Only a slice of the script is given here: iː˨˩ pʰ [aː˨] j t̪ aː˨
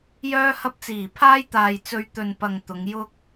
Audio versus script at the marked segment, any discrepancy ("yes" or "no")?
yes